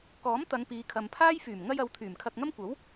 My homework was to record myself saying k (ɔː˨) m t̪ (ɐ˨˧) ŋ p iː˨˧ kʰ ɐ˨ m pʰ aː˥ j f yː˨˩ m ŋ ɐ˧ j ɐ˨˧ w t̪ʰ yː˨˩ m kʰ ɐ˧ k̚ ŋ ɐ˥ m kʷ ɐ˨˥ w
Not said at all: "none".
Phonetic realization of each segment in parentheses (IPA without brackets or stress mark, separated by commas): ɔː˨˥, ɐ˨˧